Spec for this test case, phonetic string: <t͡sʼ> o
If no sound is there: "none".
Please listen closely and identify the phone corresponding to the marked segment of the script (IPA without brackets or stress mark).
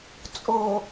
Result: t͡sʼ